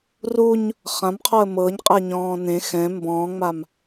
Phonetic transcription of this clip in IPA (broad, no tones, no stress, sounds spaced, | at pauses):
r u ɲ | χ ã m qʰ ɔ ə̯ m ɤ ɲ qʼ ɛ ɲ ɔ̃ː n ẽ x ɛ̃ m b ɔ̃ː ŋ͡m a m